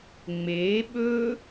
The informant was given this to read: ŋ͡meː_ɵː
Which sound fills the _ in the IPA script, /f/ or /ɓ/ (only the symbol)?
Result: ɓ